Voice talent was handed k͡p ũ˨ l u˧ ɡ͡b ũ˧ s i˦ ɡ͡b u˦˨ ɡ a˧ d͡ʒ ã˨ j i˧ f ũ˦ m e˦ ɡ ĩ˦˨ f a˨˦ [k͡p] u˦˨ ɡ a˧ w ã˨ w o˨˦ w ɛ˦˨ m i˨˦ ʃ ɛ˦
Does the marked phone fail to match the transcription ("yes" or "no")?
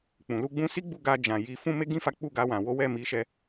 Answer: no